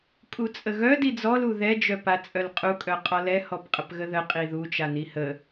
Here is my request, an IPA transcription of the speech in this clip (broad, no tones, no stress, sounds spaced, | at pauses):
kʼ u t͡sʼ ə ɣ œ d i d͡z ɔ l u ð ɛ d͡ʒ œ p a t͡sʼ œ l qʼ u kʼ œ qʼ ɔ l ɛ h ɔ p qʼ ə p ɣ ə ð ə qʼ i ð u t͡ʃ a n i h ə